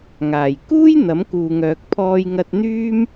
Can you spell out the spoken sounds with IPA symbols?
ŋ aː˨˩ j k uː˥ j n̪ ɐ˨˥ m k uː˨ ŋ œː˨ k̚ pʰ ɔː˧ j ŋ ɐ˧ t̚ n̪ yː˥ m

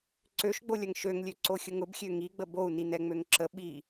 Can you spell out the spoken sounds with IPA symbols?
ǀ ø ʃ ɡ͡b o lʲ ɐ ŋ ʃ ø ŋ lʲ ø ǀ o xʲ ʊ ŋ ʊ b xʲ ø ŋ i ɡ͡b ə b o u̯ n i n ɛ ŋ͡m ø ŋ ǁ ə ɓ i

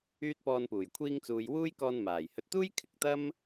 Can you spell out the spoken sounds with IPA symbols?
yː˥ t̚ p ɔː˧ n p uː˨˩ j kʷʰ iː˧ ŋ t͡s uː˨ j w uː˥ j k ɔː˧ n m aː˨˩ j h ɵ˨ t̚ t̪ uː˥ j kʰ ɪ˨ k̚ t̪ ɐ˥ m

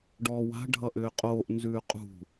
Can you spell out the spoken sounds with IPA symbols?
ɖ ɔː w a̤ ɖʱ ʌ ʔ ʏː qʼ oː ʔ n z ʉː qʼ ṳ

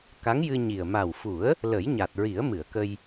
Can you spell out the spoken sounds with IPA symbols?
k a˧˥ ŋ j ɨ˧ ɲ i˨˩ ə̯ m a˨˩ w f u˨˩˦ ə̯ | l ə˨˩˦ j ɲ a˨˩ t̚ ɹ i˨˩˦ ə̯ m ɨ˨˩˨ ə̯ k ə˧ j

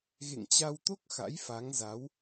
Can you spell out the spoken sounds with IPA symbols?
ɣ ḛ˧˨ ŋ t͡ɕ a˧ w t̪ o˦˥ k̚ x a̰˧˥ j f a˨˦ ŋ z a˨˦ w

